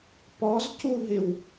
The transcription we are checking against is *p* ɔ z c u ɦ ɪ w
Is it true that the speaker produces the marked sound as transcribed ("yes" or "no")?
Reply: yes